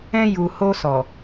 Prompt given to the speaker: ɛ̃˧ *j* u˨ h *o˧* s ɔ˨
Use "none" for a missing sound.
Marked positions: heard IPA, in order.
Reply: j, o˧

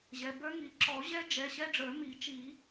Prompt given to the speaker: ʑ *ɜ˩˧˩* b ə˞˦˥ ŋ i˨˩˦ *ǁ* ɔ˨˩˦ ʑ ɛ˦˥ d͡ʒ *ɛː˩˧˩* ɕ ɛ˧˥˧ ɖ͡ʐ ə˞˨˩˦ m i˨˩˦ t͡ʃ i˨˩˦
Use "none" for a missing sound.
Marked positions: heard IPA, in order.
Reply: ɛ˩˧˩, ǁ, ɛ˩˧˩

